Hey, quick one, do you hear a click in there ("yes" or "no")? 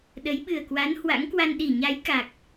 no